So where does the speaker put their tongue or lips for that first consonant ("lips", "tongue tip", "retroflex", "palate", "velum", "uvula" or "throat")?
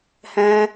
throat